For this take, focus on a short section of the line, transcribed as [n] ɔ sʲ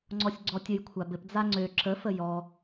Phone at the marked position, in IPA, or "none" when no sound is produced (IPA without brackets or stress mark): ŋ͡ǀ